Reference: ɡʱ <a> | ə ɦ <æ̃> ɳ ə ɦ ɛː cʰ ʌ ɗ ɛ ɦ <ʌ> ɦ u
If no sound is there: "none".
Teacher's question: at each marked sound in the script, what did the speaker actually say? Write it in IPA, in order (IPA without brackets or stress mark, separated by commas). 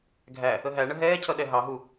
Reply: æ, æ, ɑ